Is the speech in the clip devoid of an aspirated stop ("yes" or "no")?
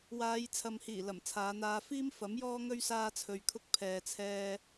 no